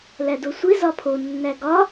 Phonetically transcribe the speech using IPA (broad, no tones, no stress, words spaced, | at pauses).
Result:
lædosʷe zɒpʰo nːæɡɒ